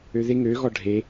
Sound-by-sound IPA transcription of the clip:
øðe ŋøɣɔ ɖʱe

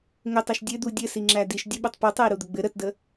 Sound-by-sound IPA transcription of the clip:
ŋɘtˤɛʃ dʲɘd̪u dʲɘsi ŋ͡ǁædiʃ dʲəɓutˤ pu tˤɛi̯ɾud̪əɡ͡bɘ ɾətdə

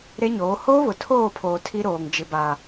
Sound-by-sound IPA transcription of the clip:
ɾe˦ɲoː˨˦ hoː˦βʊ˨tʰoː˦˨pʰoː˨ tʰi˦ɾoː˨ŋd͡ʒɪ˨ba˨

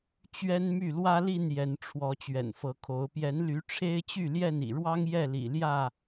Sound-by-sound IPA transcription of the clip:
t͡ɕɥɛ˦nmy˥˨ lwä˦li˥˨n jɛ˨˦nʈ͡ʂʰwɔ˨˦ t͡ɕɥɛ̰˨˩nfɤ˨˦kʰo˨˦ʊ̯ pjɛ˨˦nly˨˦ ʈ͡ʂʰe˦ɪ̯t͡ɕy˥˨ljɛ˥˨nḭ˨˩ ɻwɑ˦ŋ jɛ˥˨lḭ˨˩ljä˥˨

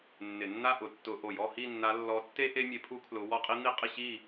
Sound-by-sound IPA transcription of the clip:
nːɪ˧˩˧nːa˥˧ʔʊ˧˩˧ tːʊ˧˩˧ʔo˧˩˧j ɔ˥˧hi˥˧nːa˧˥ lːɔ˧˥tːe˥ ʔe˥ mʲe˧˥pʰu˥kʰlʊ˧˥ wɔ˥˧qʼi˥n̪i˥ qʼɪ˥˧ɕi˥˧

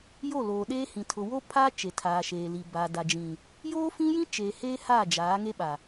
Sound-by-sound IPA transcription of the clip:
jo˦˨loː˨ɗeː˦ hĩ˨ tʰʊ˨wo˦pʰaː˦ t͡ʃe˨tʰaː˨ʃeː˨li˨ ba˨da˨d͡ʒĩ˨ | joː˦fĩ˦jĩ˦ t͡ʃeː˨heː˦ ha˦˨d͡ʒaː˨˦ŋe˦ɓa˨

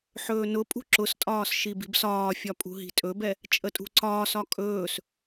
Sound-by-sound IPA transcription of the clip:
ħɵːnʊpʼṳ ǁʊstʼɒːs ʃibi̤bsɒːfʲɒ pʼṳɦi̤tʼɵbɛ | t͡ʃʼətʼṳǀɒːsɒ kʼɵːs

